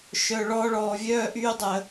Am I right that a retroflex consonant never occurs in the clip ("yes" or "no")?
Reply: no